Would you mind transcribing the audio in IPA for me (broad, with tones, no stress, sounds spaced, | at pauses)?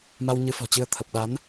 m a˧ w ɲ ɨ˨˦ f ɔ̤˨˩ t͡ɕ ɨ˧ ə̯ t̪ʰ ə˨˩ p̚ ɗ a˨˦ n